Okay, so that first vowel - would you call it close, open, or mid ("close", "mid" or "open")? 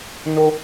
mid